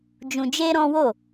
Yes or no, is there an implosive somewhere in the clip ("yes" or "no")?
no